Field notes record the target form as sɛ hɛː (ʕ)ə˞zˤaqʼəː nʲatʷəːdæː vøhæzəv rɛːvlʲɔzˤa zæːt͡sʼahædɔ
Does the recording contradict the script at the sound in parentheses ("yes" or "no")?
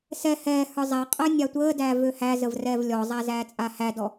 yes